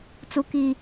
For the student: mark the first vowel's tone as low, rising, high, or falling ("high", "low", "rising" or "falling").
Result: high